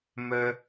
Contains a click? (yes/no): no